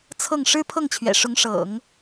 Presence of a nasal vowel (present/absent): absent